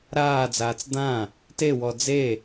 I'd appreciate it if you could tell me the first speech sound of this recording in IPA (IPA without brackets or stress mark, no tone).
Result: ɾ